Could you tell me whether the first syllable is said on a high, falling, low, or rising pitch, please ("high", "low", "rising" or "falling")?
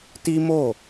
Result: high